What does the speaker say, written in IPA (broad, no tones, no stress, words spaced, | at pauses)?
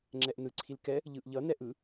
ŋ͡ǁɛʔnɯ ǀʰilkɛ | ʎɯʔʎʌ nɛʔɯ